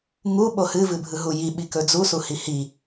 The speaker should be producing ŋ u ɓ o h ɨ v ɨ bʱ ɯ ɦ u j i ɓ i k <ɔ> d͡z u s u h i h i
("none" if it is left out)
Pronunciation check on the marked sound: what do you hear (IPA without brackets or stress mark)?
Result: ɵ